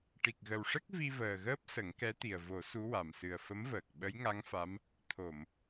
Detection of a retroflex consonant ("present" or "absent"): present